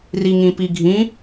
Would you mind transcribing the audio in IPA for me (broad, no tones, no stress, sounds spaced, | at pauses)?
r i ŋ ĩ p i ɡʱ ĩ